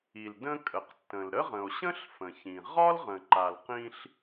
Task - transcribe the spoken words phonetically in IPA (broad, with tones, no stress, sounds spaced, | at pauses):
i˩ l d ə̃˧ kʼ ə˩ q tː ə̃˩ l ɾ ə˥ ʁ ə̃˩ o̯ ɕ ə̃˥ ɬ f ə̃˩ ç ĩ˩ ʁ ɒ˥ l ʁ ə̃˩ ǃ a˩ l q ĩ˧ ɬ